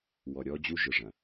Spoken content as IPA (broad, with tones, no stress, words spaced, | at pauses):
wɔ˨ɾʲɔ˦ d͡ʑu˦ʒɯ˨ʐɐ̃˨